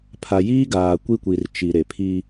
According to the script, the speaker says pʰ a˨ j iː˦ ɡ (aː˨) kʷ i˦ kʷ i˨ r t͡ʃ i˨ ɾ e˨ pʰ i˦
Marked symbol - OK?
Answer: yes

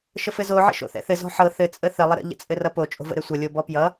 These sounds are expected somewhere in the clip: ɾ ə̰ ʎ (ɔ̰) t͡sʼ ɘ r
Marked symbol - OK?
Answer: no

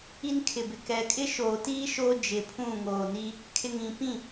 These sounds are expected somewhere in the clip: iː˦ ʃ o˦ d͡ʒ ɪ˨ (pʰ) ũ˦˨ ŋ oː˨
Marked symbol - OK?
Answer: yes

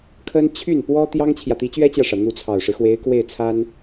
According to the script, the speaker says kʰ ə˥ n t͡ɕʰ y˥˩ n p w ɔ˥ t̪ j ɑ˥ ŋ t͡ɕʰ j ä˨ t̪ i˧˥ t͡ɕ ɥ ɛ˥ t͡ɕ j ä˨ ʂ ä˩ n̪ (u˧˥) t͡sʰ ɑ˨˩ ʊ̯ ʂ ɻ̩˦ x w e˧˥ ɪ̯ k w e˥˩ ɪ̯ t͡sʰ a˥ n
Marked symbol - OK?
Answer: yes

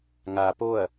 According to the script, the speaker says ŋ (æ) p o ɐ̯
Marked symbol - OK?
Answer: no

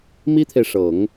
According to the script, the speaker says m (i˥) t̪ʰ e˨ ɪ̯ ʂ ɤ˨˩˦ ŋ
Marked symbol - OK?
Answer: yes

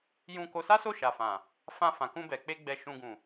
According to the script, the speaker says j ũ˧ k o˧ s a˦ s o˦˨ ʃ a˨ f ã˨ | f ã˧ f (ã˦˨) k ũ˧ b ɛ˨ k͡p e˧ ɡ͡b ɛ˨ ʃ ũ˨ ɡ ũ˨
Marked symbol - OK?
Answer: no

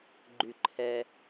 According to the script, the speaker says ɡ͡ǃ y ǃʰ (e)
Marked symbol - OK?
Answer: no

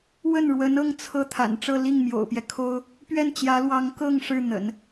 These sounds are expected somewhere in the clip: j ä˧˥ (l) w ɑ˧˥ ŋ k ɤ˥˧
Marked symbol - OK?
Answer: yes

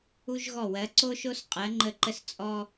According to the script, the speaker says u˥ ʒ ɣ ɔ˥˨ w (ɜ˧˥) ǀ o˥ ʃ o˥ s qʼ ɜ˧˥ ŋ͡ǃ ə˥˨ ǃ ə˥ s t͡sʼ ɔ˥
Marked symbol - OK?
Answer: yes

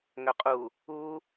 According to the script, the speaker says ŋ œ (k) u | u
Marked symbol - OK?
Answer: no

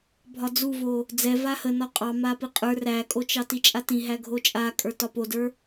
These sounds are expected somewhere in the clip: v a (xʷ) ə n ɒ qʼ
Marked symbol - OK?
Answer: no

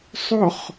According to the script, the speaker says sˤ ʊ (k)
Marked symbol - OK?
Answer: no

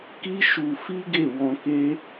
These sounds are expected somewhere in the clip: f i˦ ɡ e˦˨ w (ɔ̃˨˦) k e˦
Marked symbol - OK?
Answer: no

